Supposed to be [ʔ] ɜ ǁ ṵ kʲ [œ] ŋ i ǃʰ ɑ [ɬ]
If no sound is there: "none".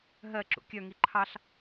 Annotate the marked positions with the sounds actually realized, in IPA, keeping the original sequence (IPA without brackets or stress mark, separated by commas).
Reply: ɦ, œ, ɬ